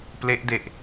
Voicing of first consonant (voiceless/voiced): voiceless